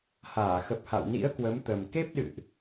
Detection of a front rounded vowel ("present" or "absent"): absent